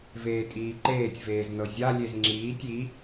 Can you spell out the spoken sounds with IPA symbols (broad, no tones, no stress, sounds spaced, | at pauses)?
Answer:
v eː tʼ iː ǃ eː tʲ v eː z n ɤ zʲ a lʲ e z ŋ͡ǁ iː tʲ i